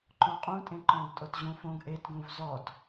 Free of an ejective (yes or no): no